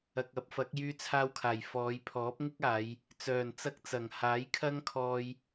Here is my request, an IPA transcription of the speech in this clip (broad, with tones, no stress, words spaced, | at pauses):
ɐ˨k̚ɐ˨˥p̚fɐ˨˥k̚ jyː˧t͡sʰaː˧wkʰaː˨˩jfɔː˨˧j pʰɔː˨˥p̚ŋɪ˥k̚aː˨˧j | t͡sœː˨˩nt͡sɐ˧k̚t͡sɐ˨˩ŋ haː˨˥jkʰɐ˥ŋkʰɔː˧j